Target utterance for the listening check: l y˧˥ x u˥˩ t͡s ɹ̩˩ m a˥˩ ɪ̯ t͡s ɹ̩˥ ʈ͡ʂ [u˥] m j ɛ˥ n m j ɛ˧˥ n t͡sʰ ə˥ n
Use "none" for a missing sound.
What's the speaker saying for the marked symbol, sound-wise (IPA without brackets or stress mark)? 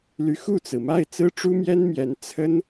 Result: u˥